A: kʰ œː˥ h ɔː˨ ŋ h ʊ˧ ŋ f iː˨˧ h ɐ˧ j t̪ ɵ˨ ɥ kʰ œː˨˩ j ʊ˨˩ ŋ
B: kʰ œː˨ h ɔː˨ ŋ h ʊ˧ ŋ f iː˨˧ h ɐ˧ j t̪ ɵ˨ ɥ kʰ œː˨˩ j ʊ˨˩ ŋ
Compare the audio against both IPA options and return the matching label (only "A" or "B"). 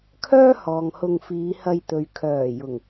A